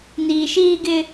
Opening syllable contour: low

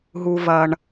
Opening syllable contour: low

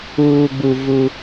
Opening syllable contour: low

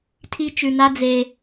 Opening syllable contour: high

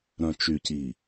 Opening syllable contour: low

